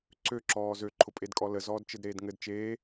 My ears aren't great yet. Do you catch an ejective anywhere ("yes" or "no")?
yes